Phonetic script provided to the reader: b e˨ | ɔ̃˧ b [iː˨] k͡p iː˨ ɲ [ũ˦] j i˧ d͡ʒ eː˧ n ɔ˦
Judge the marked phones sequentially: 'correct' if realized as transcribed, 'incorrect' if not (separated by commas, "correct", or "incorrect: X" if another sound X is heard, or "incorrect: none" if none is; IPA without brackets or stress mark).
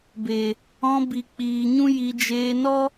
incorrect: i˨, correct